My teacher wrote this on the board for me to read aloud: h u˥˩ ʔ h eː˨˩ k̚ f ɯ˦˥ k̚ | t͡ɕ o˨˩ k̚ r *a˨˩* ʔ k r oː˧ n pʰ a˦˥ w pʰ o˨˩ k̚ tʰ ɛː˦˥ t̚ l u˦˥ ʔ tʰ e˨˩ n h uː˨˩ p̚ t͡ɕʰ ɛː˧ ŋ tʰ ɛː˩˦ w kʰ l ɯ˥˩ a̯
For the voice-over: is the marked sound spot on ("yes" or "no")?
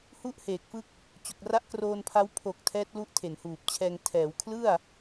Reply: no